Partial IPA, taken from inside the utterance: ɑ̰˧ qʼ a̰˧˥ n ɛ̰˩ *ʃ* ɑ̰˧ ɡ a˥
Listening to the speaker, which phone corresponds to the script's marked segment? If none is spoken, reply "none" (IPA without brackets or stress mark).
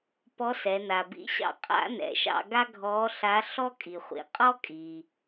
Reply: ʃ